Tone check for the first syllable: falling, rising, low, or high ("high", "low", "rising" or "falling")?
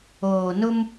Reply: low